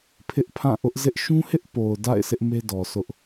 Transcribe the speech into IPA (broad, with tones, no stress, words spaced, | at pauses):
pʰɪ˦ʔpʰã˦˨ ʔʊ˦ʔzɪ˦ʔ ʃũ˦hɪ˦ʔpo˨ʊ̯ da̰˦˨ɪ̯ sɪ˦ʔme˦dɔ˨ sʰʊ˦ʔ